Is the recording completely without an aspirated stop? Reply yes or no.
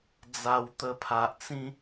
no